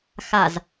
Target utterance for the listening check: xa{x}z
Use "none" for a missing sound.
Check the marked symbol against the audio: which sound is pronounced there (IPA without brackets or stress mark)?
none